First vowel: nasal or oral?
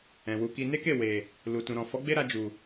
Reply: nasal